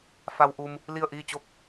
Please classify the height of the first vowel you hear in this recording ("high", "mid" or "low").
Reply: low